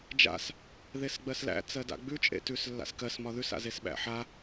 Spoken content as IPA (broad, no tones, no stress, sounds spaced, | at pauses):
d͡ʒ a̰ s | ð e s ɡ͡b ɜ s l æ̰ t͡s ɜ d a̰ ɡ͡b ʉ t͡ʃʼ ḛ t ʉ s lː a̰ s k ɜ s m ɒ ð ʉ s a̰ z e s ɓ æ̰ ħ a